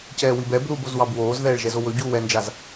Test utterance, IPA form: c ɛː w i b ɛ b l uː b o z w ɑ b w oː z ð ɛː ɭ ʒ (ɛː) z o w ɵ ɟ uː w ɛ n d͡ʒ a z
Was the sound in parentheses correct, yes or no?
no